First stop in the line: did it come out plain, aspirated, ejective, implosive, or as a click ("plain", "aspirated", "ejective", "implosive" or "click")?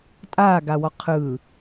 ejective